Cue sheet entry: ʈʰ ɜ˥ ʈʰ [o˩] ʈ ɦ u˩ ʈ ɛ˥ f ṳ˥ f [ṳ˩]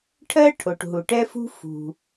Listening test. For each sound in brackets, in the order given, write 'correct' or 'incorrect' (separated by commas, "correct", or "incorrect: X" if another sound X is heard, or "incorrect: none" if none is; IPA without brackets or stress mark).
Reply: correct, correct